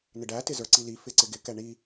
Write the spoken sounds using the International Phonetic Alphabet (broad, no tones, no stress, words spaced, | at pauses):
nɪɖætɪ zə˞ǀili fɪǀɪɡɪkɛ ɳi